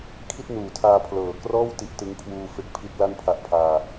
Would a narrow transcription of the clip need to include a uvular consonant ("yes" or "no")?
no